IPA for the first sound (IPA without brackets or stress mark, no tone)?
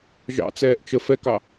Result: ʒ